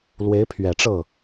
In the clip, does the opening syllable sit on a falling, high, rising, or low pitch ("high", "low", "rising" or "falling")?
rising